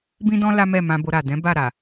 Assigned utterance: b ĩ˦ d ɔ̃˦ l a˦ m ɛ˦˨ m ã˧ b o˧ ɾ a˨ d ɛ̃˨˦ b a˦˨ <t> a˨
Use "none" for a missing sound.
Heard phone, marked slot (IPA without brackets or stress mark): ɾ